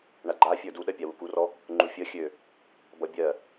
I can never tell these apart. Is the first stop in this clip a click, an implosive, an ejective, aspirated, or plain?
click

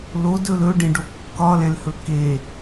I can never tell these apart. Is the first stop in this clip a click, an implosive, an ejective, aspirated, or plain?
plain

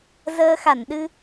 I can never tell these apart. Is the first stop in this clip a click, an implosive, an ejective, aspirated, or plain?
implosive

